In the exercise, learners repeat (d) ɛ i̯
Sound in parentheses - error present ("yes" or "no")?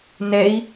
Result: yes